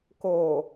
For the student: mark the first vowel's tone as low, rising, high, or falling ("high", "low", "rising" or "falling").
low